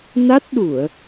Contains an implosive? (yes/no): yes